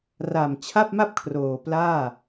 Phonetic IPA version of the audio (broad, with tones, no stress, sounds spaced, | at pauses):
r a˨˩ m t͡ɕʰ a˥˩ p̚ m a˥˩ p̚ kʰ r oː˨˩ p l aː˥˩